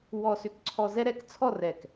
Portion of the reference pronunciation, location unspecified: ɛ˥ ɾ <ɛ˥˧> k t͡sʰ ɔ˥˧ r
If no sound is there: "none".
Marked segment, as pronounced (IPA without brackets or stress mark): ɛ˥˧